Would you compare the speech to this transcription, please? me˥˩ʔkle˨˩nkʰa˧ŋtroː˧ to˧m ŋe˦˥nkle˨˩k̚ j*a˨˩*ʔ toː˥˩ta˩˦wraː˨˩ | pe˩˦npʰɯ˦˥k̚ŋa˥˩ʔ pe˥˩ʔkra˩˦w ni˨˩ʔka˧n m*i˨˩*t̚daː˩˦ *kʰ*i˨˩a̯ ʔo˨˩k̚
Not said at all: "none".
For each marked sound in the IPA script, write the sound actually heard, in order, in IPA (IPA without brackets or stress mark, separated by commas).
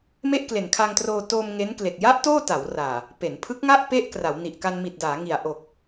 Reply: a˦˥, i˨˩, ŋ